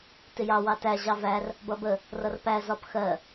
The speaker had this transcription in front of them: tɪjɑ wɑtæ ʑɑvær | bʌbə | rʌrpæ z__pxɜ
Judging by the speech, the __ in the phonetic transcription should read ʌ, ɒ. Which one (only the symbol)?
ɒ